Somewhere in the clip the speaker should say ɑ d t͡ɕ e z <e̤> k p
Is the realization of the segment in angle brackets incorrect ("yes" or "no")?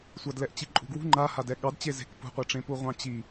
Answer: no